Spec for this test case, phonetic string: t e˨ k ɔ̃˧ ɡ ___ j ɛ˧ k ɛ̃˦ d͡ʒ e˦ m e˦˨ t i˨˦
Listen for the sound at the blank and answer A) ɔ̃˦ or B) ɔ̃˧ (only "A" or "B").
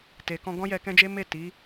A